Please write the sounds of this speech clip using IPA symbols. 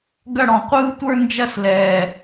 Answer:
ɡ ɐ˥˧ ɽ ɔ̃˨˩ qʷ ɯː˥ tʷ ə˞˥ n d͡ʒ ɐ˥˧ s l ɛː˨˩

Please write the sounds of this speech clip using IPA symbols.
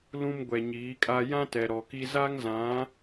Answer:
l ũ˦ m ɡʷ ɛ˨ ɲ iː˨˦ kʼ a˦ j ã˦ t ɛ˨ ɾ ɔ˨ k i˦ z a˦ ŋ z ã˨˦

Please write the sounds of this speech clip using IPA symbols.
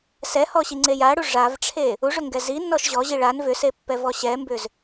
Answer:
s ɛ h ɔ ɕ i ŋ͡ǀ e j a ɽ u ʐ a v ʈ͡ʂʰ e | u ʐ ʏ ŋ ɡ ɛ z i nː ɔ ʃ ʑ ɔ ʑ i ɭ a n v ʏ s e pː ɛ v ɔ ɕ ɛ m b ʏ z

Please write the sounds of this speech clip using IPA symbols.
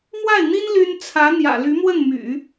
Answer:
m w a˥˩ ɪ̯ n̪ i˥ n l y˥ n t͡sʰ ä˧˥ n̪ j ä̰˨˩ l y˧˥ m w ə˥˩ n m y̰˨˩˦

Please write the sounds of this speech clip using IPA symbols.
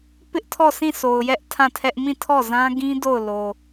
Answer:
p ɪ˦ ʔ tʰ ɔ˦˨ sʰ ĩ˦˨ sʰ o˨ ʊ̯ j ɛ˦ ʔ tʰ ã˦˨ tʰ ɛ˦ ʔ m ĩ˦˨ tʰ ɔ˦˨ z ã˦ ɡ ĩ˦ d o˦˨ ʊ̯ l o˨

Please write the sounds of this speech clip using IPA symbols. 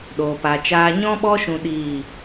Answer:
ɗ oː˨ p a˨ t͡ʃ aː˧ ɲ ɔ̃˦ ɓ ɔ˦ ʃ ũ˦ ɗ iː˦˨

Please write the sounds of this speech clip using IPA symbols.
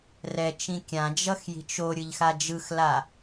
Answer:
r ɛ t͡ʃ ĩ kʲ ã d͡ʒ ʌ x j i̤ t͡ʃ o ɾʲ ɯ ʎ x a d͡ʒ ɯ x l a

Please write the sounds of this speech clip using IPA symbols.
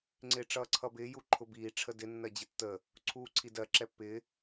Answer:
ŋ͡ǀ ɪː ʈ͡ʂ ʌː ǀʰ ʌ b ɪː j u ǃʰ ʊ b iː ʈ͡ʂʰ ə d ɪ nː ɜ d͡ʑ ɪ tː ə | ǀʰ uː ǀʰ i d ɜ ǁ ɛ pː ɪː

